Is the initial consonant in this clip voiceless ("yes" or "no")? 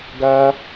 no